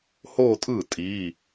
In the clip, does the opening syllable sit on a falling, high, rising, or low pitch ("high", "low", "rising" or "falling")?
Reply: falling